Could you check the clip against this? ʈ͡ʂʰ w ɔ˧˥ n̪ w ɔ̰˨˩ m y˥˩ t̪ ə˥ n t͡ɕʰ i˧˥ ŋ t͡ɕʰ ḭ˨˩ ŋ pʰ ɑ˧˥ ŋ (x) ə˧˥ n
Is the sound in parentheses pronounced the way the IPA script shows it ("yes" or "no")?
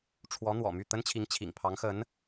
yes